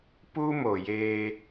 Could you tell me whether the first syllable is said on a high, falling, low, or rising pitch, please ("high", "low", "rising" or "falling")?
high